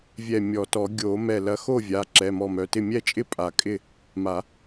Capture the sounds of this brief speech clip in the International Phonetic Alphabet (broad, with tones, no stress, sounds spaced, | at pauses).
vʲ ɛ˧˩ mʲ ɔ˨˩˦ t ɔ˨˩˦ ɡʲ o˨˩˦ m ɛ˧˩ l ɐ˨˥ x o˥˩ vʲ a˩˧˩ ǁ ɛ˩˧˩ m ɔ˧˩ m œ˩˧˩ t ɪ˥˩ mʲ ɛ˥˩ t͡ʃʼ ɪ˥˩ pʼ a˨˩˦ kʼ ɪ˥˩ | m a˨˩˦